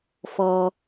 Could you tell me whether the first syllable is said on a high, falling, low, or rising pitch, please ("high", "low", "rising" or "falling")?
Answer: high